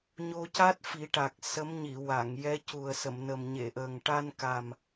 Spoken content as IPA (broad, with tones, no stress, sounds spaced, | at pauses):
ɲ o˧ c a˦˥ t̚ f i˨˩˦ ʈ a˨˩ k̚ s ə˧˥ m ɲ i˨˩˨ w a˨˩˨ ŋ j ɛ˧˥ c u˨˩ ə̯ s ə˨˩˨ m n ə˨˩ m ɲ e˨˩˨ ʔ əː˨˩ ŋ ʈ a˧ n k a˨˩ m